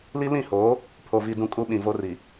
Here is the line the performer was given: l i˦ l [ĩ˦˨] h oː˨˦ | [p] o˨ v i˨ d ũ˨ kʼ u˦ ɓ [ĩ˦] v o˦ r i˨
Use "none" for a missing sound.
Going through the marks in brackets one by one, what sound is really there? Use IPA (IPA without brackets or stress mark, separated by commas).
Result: ĩ˦˨, pʰ, ĩ˨